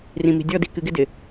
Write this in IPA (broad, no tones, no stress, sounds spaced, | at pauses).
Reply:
r ĩ m i̤ dʲ ɔ d i k ɨ ɡ ɪ d ɪ